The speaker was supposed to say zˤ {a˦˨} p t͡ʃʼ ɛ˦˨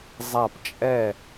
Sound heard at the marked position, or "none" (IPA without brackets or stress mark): a˦˨